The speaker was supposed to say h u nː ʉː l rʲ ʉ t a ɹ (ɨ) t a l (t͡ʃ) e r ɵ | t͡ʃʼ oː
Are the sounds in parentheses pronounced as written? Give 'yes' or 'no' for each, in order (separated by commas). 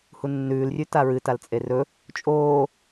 yes, no